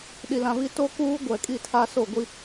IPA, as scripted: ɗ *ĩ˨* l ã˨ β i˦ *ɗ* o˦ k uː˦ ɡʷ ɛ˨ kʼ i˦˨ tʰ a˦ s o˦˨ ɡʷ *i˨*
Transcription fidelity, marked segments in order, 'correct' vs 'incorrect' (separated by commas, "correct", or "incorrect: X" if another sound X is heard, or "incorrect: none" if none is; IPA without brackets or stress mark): incorrect: i˨, incorrect: t, incorrect: i˦